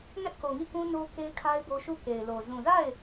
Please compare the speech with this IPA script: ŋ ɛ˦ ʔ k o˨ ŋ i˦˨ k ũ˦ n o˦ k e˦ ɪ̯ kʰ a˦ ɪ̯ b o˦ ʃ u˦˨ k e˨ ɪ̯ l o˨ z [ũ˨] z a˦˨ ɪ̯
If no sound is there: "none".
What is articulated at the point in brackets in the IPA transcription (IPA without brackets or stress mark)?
ũ˨